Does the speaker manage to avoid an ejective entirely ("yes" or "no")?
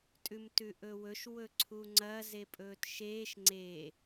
no